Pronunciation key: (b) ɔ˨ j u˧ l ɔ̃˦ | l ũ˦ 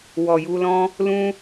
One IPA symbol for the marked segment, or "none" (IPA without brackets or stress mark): w